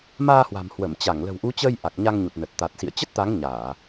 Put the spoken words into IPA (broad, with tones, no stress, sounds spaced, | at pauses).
m aː˧ h w a̤˨˩ m h w ə˧˩ m t͡ɕ a˧˩ ŋ l ə̤˨˩ w ʔ u˨˦ t͡ɕ əː˧ j ʔ a˨˩ k̚ ɲ a˧ ŋ ɲ u˨˩ t̚ n ə˨˩ t̚ t̪ a˨˩ t̚ s ḭ˧˨ ə̯ t͡ɕ ə˦˥ t̚ t̪ a˨˦ ŋ ɲ aː˧˩˨